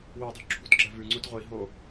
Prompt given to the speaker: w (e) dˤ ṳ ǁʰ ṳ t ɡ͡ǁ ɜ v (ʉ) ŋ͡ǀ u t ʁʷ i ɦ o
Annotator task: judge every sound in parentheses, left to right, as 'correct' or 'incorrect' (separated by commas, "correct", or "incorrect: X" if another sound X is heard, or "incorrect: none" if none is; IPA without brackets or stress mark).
incorrect: i, correct